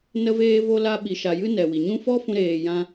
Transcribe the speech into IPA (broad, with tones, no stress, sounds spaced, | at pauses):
n ə˦ v eː˦ v o˧ l a˧ ɓ i˨ ʃ a˨ j ɨ˦ n ɛ˨ w i˨ ɲ ũ˦ f ɔ˦ f ũ˧ ɾ eː˧ j ã˦